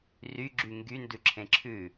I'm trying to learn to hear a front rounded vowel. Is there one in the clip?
yes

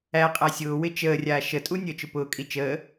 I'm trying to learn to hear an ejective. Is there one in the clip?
yes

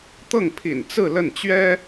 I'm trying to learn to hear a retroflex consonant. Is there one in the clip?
no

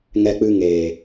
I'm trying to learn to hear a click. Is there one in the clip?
no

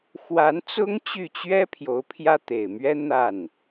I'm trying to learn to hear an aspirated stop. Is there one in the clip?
yes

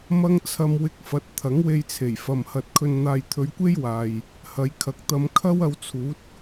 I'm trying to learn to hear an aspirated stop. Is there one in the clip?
yes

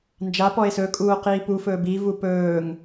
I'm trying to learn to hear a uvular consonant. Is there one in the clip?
yes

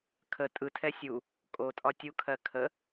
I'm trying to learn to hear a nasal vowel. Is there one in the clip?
no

